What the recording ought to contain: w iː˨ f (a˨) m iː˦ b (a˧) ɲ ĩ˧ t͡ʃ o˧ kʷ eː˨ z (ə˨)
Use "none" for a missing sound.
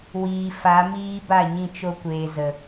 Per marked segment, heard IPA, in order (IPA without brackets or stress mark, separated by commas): a˨˦, a˦˨, ə˨